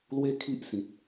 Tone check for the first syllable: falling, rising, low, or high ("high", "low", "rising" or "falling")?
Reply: high